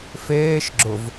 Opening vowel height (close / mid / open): mid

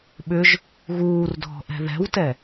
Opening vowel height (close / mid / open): close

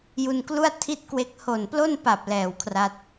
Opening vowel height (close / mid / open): close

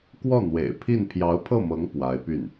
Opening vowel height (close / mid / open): mid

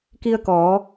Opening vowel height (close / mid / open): close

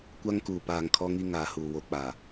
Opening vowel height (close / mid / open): open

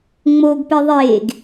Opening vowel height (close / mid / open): mid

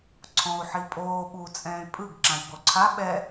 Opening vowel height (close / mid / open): mid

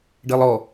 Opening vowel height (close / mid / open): mid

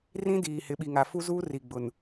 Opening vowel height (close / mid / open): close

